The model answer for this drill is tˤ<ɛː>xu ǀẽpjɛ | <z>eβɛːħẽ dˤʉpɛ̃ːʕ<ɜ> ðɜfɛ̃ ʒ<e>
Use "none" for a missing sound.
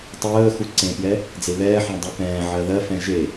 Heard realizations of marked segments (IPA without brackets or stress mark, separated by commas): əː, d͡z, ɜ, e